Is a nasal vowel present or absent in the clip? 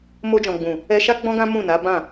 present